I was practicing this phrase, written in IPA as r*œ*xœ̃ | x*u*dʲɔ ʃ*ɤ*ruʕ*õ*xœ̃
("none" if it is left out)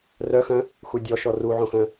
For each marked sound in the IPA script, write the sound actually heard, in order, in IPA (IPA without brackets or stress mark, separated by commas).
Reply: œ, u, ɔ, õ